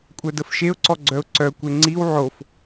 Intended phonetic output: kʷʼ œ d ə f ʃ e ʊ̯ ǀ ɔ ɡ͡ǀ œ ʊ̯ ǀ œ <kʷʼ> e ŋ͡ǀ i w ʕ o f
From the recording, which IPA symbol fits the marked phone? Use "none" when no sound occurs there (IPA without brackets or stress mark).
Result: kʷ